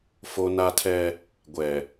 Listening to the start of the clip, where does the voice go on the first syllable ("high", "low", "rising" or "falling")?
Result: high